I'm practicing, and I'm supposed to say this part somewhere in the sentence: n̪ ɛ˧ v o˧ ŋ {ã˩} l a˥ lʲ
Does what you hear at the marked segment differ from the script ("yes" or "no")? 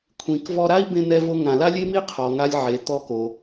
no